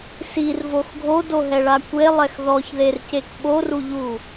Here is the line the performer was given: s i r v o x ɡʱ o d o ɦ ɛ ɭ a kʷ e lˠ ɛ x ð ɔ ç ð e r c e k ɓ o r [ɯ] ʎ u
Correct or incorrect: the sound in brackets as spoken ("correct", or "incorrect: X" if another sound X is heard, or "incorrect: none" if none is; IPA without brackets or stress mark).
incorrect: u